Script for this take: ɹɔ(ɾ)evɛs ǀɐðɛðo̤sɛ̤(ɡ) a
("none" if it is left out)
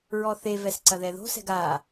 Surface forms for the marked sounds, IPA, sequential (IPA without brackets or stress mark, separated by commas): θ, ɡ